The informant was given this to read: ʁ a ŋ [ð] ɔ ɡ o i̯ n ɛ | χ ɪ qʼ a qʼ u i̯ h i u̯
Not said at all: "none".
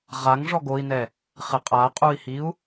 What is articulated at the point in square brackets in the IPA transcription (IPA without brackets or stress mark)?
ʐ